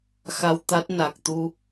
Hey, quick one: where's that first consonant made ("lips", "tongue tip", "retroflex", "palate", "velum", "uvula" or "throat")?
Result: velum